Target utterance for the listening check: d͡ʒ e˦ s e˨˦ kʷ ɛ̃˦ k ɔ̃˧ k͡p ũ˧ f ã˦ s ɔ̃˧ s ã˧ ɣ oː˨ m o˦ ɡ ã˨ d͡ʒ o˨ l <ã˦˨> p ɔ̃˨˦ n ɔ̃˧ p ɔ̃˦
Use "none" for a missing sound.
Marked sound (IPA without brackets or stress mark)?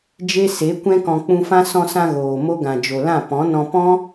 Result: ã˦˨